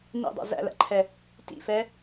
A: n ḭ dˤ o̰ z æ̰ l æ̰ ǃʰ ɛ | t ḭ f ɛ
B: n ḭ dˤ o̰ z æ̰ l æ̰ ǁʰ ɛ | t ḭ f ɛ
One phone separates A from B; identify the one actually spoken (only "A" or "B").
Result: A